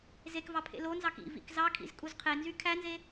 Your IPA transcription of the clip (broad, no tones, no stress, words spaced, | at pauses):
zekvɑ pʰḛlonzɑk ḭ vḭkzɑkʰḭz kʼuzqʰenzy kʰænze